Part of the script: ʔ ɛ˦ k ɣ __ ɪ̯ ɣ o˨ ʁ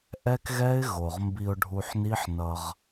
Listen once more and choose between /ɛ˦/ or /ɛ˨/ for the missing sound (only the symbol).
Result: ɛ˦